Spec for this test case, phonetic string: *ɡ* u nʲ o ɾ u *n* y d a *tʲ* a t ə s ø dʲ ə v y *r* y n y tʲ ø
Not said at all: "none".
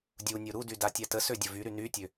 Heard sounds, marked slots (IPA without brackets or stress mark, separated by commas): dʲ, d, tʲ, ɾ